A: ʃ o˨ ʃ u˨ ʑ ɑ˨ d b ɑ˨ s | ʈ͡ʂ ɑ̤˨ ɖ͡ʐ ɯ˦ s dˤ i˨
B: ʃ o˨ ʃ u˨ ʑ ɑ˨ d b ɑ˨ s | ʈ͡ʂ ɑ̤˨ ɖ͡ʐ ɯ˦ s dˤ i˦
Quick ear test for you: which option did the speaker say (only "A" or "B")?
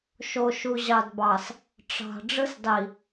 A